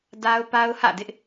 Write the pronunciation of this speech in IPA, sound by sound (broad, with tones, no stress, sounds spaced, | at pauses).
d a˦ ʊ̯ p a˦ ʊ̯ h ä̰˦˨ d ɪ˦ ʔ